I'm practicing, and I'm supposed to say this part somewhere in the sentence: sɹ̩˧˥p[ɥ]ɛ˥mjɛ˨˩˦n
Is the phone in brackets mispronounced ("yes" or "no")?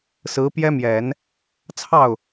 yes